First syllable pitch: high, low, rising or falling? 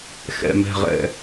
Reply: falling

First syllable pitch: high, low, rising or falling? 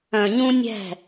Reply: low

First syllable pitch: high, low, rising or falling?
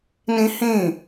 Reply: high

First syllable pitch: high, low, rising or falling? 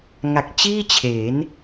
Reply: low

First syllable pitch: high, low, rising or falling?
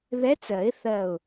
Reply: rising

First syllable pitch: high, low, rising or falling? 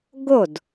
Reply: falling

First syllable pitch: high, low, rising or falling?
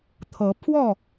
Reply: rising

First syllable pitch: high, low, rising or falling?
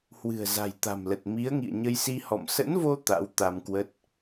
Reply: low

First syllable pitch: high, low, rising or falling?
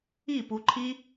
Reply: falling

